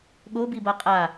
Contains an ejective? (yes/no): yes